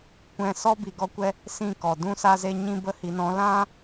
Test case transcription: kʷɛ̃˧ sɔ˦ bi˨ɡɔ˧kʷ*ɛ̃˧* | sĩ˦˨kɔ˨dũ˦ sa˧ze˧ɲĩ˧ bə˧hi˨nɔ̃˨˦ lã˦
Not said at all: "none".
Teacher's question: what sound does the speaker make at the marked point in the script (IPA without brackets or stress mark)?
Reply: ɛ˧